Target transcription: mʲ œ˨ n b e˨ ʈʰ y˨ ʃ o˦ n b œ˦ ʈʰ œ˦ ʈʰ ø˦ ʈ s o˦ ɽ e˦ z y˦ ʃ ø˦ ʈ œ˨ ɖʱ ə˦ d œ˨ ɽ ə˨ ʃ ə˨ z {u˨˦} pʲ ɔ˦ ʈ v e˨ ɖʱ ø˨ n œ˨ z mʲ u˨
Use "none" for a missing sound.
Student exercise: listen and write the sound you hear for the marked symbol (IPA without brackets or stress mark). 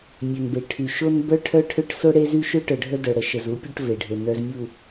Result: u˨˦